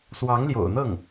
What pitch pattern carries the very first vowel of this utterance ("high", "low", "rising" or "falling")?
rising